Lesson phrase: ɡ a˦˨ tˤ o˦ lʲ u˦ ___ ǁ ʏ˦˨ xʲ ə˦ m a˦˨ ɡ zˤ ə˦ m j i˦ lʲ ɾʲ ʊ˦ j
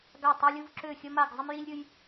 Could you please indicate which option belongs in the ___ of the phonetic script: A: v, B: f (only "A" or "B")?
A